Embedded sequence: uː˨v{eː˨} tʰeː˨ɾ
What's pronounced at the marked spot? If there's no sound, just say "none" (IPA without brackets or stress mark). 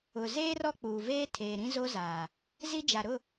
eː˦